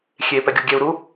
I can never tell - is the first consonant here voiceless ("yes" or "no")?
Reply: yes